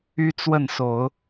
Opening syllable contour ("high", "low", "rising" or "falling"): high